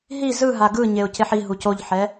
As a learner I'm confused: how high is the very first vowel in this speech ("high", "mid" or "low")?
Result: high